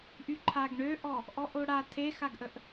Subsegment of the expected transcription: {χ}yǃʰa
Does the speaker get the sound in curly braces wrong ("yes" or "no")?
yes